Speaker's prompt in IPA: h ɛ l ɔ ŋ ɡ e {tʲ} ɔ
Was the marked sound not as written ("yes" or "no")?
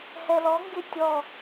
no